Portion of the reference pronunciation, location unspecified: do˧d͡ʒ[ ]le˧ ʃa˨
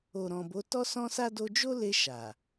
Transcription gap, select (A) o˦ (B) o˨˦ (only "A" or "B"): A